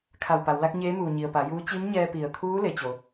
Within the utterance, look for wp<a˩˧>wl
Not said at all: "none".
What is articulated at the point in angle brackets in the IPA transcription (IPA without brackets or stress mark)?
a˩˧